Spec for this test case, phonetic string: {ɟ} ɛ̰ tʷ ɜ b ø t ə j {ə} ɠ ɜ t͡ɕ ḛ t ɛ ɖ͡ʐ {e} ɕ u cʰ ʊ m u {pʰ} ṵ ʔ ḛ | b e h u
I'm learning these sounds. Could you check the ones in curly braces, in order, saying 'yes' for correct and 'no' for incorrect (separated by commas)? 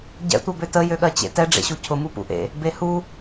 yes, no, no, no